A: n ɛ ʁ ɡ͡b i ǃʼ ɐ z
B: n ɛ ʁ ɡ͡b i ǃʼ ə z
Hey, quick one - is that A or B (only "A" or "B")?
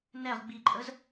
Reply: B